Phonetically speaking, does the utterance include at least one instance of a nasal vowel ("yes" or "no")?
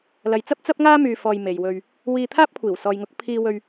no